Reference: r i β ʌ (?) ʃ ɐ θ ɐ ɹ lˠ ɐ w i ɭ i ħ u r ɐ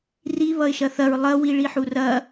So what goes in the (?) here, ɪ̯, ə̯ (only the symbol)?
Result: ɪ̯